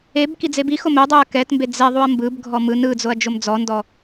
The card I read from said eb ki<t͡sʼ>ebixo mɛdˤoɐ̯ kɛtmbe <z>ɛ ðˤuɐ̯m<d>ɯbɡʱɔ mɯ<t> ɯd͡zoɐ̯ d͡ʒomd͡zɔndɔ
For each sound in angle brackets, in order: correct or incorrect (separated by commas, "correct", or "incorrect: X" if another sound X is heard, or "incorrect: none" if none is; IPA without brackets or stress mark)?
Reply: incorrect: d͡z, incorrect: d͡z, incorrect: b, incorrect: n